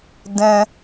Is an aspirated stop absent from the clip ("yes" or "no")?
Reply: yes